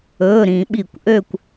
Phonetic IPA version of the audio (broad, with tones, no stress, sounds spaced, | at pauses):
ɵː˩˧˩ ɾ ĩ˧˩˧ ɓ i˧˩˧ kʷ ʔ ø˥˧ kʷ